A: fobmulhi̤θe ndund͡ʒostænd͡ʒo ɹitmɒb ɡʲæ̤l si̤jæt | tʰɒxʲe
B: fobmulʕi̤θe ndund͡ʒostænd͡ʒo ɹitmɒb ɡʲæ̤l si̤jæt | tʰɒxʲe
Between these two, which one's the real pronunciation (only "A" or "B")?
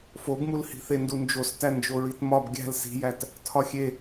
A